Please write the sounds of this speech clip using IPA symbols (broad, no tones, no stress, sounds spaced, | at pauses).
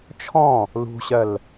t͡ʃʰ ɔ̃ | l ṳ ɕ ɜ l